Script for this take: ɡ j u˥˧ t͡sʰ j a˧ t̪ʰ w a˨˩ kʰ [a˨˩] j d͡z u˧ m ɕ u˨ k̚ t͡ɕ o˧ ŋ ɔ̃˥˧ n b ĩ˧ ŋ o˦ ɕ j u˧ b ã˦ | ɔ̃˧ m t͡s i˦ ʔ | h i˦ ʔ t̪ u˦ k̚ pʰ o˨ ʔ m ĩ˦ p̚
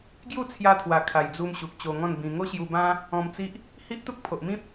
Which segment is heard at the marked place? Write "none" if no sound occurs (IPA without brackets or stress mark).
a˨˩